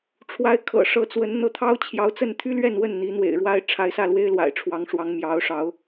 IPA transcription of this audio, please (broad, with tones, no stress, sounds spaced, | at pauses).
ʈ͡ʂʰ w a˧˥ ɪ̯ kʰ ɤ̰˨˩ ʂ ɤ˧˥ t͡s w ə˧˥ n n̪ ɤ˧˥ t̪ʰ ɑ˥ ʊ̯ t͡ɕʰ j ɑ˧˥ ʊ̯ t͡s ə˥˩ n t̪ʰ y˥ l ɥ ɛ˥˧ n w ə˥˩ n n̪ i˧˥ n̪ w ḛ˨˩ ɪ̯ ɻ w a˥ ɪ̯ ʈ͡ʂʰ a˧˥ ɪ̯ s ä˥˩ l w e˥ ɪ̯ l w a̰˨˩ ɪ̯ ʈ͡ʂʰ w ɑ˧˥ ŋ ʂ w ɑ˧˥ ŋ m j ɑ˧˥ ʊ̯ ʂ ɑ˧˥ ʊ̯